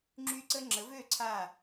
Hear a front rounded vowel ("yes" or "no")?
yes